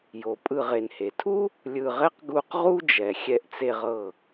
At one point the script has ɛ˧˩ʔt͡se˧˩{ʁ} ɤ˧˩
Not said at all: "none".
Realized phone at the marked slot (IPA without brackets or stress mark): ʁ